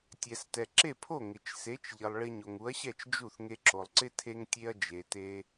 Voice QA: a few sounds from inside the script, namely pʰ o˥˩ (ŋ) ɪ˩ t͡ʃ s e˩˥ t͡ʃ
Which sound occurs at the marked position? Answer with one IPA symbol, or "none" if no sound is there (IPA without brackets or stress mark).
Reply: ŋ